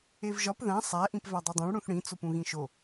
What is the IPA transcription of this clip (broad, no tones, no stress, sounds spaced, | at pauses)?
e v ʒ ɒ p ð æ̃ sˤ æ ʔ ĩ p v æ dˤ i dˤ õ ɭ ɽ ũ θ ɽ ĩ t͡s o p ũ ɣ ĩ ʃ o